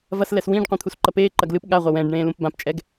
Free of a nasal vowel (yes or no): no